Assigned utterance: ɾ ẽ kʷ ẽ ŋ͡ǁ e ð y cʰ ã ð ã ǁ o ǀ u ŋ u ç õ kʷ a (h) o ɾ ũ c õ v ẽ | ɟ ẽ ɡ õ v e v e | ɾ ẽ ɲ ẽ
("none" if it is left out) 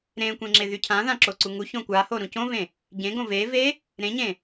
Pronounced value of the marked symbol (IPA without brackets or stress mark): h